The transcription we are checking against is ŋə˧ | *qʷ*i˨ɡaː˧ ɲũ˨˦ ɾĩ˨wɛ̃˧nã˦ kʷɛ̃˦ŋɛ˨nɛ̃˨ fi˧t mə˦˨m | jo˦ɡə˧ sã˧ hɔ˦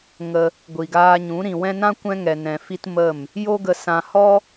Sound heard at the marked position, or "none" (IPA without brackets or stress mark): ɡʷ